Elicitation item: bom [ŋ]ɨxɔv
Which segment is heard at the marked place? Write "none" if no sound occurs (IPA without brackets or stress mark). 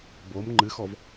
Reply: ŋ͡ǃ